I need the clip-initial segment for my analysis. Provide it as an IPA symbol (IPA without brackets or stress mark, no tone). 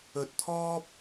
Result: ɵ